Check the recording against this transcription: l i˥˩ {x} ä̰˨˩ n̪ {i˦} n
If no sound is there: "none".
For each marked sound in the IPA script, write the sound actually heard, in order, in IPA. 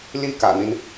k, i˦

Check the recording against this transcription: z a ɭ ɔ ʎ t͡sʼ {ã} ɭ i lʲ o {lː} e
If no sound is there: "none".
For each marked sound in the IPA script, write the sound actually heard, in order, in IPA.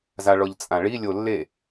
ã, lː

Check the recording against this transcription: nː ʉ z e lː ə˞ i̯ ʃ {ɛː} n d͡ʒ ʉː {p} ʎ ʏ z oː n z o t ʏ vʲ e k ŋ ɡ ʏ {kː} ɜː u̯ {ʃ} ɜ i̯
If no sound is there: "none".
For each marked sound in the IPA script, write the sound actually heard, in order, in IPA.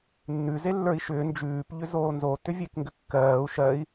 ʏː, p, kː, ʃ

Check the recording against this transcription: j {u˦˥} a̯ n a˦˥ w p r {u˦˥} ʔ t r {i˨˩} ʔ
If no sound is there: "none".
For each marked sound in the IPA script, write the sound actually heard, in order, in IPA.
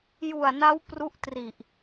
u˨˩, u˦˥, i˨˩

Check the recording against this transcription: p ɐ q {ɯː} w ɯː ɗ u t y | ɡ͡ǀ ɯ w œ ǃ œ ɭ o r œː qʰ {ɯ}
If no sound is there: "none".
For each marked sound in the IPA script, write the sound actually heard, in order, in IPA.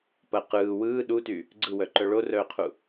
ɯː, u

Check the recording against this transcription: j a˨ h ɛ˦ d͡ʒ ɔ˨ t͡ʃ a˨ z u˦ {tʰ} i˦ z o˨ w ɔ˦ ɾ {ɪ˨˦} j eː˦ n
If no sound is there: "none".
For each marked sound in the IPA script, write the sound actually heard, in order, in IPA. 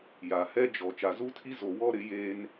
tʰ, ɪ˨˦

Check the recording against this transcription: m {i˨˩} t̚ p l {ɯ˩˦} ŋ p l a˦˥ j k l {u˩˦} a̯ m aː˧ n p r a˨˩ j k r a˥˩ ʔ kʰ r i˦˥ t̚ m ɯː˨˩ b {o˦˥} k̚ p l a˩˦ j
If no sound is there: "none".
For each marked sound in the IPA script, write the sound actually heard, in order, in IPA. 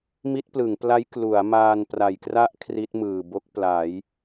i˦˥, ɯ˩˦, u˩˦, o˦˥

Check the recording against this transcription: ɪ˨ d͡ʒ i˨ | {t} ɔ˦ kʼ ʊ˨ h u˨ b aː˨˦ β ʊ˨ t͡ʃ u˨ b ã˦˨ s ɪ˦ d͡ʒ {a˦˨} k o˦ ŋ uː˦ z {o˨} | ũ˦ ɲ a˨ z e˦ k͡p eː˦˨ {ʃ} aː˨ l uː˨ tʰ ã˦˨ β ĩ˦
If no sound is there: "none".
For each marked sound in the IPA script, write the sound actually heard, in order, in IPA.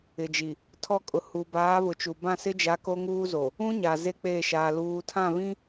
tʰ, a˨˦, o˨, ʃ

